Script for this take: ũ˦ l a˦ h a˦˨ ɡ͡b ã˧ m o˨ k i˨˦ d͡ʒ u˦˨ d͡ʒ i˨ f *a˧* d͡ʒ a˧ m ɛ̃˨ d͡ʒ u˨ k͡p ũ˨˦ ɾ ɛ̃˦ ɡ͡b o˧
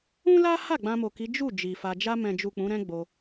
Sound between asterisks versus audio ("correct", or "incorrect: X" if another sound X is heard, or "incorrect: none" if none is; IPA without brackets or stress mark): correct